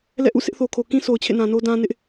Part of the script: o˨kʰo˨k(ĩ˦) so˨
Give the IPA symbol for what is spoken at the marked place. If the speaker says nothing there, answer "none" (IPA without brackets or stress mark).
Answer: ĩ˦